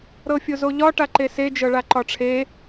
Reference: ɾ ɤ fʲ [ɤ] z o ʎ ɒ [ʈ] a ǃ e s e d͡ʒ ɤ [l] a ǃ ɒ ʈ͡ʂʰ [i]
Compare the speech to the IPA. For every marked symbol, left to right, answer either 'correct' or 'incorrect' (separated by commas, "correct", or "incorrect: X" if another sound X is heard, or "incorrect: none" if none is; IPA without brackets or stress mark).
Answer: incorrect: o, correct, incorrect: ɭ, incorrect: e